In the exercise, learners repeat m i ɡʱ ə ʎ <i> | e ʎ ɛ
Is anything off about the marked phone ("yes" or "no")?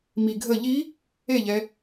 no